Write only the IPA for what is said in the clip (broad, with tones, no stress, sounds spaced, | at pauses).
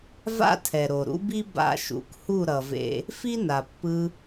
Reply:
v a̰˦ tʰ ɛ˨ ɾ o˨ ɾ ṵ˦ b i˦ b a̰˧ ʃ ṵ˨ k h u˦˨ ɾ ʌ˨ v ḛ˧ | f i˦ n a˨ pː ɯ˧